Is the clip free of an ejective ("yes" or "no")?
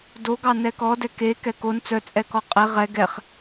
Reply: no